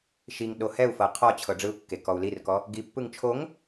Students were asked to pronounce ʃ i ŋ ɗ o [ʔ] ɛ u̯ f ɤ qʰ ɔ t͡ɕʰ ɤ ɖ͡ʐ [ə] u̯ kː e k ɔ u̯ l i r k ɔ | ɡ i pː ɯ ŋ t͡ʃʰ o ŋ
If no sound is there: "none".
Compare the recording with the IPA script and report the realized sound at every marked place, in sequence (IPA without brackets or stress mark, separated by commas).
h, ɯ